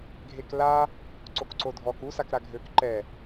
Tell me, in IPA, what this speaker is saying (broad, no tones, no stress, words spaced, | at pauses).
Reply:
ɡʱekla | ǀokǀodʱɔk u sakɾaɡʱøk ǃɛ